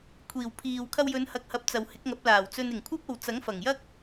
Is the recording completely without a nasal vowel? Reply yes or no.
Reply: yes